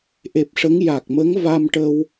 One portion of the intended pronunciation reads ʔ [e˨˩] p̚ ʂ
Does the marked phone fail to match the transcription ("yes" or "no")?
no